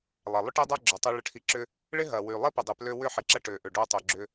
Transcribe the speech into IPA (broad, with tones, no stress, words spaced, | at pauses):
lˠɐ˨lˠʏ˦ʈi˦dˤa˦ ɡ͡ǁœ˨tˤø˧ ɭə˧ʈʰi˧ ǁʏ˧ | ɭɪ˦ɦɐ˨wy˨ lˠɪ˦pɪ˨dˤɪ˨plø˧ wʏ˦ ħɪ˨ǁɐ˧ ʈø˨ʔʏ˨ ɖo˦tˤo˧ɡ͡ǁʏ˦